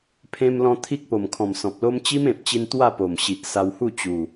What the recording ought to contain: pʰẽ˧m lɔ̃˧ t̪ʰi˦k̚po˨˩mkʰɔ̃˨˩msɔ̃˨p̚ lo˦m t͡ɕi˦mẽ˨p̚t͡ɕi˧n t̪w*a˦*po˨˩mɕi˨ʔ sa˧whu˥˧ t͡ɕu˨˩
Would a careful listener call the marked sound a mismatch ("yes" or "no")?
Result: yes